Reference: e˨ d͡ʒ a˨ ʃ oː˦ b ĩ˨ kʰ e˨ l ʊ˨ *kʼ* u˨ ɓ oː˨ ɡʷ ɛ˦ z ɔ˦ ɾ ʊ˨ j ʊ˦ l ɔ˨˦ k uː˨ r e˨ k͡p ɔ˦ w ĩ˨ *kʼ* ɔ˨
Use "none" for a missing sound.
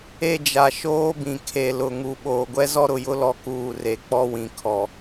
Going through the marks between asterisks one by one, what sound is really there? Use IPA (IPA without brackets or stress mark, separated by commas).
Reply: ŋ, kʰ